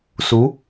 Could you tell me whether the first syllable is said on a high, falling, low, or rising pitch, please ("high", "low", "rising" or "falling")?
rising